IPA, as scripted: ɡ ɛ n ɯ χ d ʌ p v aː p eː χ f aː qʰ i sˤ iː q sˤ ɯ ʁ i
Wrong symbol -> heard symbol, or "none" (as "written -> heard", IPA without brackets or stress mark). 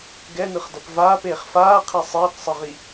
none